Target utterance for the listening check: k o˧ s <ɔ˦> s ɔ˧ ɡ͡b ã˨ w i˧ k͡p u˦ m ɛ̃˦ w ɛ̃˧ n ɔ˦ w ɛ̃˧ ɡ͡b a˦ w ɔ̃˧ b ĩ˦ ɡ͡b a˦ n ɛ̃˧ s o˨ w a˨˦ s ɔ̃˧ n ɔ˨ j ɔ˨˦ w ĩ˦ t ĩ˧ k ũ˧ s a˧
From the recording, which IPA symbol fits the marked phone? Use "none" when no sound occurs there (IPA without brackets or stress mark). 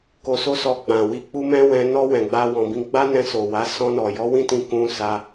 o˦